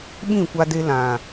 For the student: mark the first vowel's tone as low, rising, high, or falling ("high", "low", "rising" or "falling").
falling